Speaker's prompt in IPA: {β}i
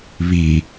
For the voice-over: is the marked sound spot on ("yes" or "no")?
yes